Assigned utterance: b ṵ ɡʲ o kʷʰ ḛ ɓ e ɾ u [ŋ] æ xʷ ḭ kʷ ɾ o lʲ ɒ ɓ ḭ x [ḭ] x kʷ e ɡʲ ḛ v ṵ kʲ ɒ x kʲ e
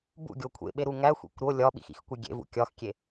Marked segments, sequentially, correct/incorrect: correct, correct

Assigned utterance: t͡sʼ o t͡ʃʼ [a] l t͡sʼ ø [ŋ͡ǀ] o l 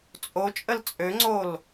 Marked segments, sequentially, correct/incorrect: incorrect, correct

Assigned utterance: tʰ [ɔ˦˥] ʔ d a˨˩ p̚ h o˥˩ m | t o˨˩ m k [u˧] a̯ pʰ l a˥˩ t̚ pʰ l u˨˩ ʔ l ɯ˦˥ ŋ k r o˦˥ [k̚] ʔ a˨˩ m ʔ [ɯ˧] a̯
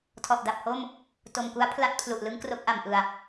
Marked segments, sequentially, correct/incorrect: incorrect, incorrect, correct, incorrect

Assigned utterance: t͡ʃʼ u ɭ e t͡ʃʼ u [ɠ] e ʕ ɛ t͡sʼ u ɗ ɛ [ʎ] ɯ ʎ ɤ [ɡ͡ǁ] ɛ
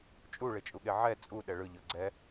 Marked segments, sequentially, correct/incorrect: correct, incorrect, incorrect

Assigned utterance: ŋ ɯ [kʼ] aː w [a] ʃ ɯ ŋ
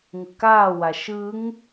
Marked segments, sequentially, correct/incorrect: incorrect, correct

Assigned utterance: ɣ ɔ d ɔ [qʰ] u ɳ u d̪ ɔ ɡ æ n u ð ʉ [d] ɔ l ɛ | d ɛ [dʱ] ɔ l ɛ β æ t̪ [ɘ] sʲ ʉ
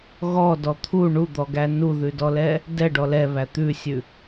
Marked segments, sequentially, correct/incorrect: incorrect, correct, incorrect, incorrect

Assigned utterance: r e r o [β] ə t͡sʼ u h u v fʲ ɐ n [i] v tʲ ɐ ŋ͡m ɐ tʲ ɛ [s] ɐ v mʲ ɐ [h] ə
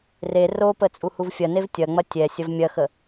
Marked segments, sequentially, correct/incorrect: incorrect, incorrect, incorrect, incorrect

